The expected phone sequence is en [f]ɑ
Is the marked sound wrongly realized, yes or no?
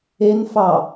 no